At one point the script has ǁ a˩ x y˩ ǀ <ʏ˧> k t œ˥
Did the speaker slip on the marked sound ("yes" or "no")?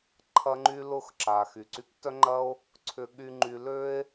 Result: yes